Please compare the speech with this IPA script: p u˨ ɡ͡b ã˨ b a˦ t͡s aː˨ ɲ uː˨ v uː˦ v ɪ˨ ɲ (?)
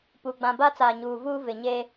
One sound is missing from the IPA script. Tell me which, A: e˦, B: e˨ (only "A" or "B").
A